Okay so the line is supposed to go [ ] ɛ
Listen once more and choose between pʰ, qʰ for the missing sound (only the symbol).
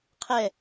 qʰ